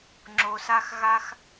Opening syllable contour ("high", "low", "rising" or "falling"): low